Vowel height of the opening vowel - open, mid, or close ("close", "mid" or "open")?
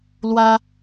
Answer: open